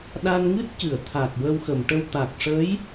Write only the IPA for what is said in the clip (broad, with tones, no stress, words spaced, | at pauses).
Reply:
ɗa˧nŋɨ˦˥t̚cɨ˨˩˨ə̯ t̪ʰa˨˩k̚ wə˧wxə˨˩˨mʈə˧w t̪a˨˩k̚ʂə˧˥j